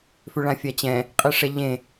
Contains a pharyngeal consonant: no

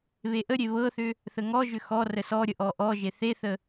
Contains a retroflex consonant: no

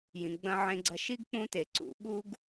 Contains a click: yes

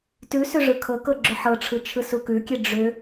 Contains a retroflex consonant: yes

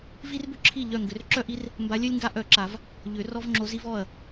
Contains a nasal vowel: no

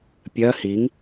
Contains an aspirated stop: no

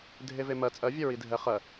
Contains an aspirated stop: no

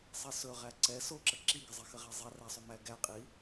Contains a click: yes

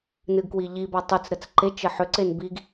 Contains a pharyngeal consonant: yes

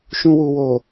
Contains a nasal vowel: yes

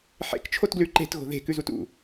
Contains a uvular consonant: no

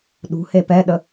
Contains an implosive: yes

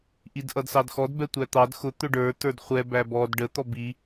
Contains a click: no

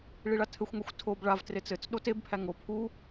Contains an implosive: yes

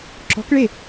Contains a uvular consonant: no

